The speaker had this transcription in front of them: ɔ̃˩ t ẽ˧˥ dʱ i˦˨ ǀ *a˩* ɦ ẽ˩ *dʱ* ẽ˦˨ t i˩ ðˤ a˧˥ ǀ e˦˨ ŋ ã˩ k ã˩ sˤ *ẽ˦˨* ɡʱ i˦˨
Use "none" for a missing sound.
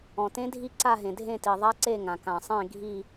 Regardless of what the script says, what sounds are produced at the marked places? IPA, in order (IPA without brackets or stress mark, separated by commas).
a˦˨, dʱ, ẽ˦˨